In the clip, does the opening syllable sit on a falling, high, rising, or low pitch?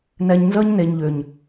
low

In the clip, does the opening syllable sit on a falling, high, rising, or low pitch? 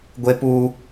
high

